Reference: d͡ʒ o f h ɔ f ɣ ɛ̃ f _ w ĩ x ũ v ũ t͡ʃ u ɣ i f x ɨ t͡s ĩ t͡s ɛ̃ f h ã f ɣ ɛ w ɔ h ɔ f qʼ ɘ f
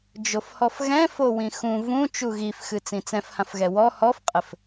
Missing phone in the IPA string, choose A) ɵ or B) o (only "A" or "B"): B